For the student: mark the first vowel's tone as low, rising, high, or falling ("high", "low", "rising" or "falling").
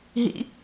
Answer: high